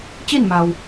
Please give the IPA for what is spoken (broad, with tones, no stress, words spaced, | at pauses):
t͡ɕi˥˨nma˩w